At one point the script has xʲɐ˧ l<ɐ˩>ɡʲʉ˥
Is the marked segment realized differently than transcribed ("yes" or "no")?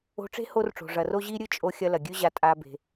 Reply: no